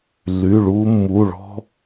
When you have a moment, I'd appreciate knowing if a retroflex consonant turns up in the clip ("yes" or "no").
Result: yes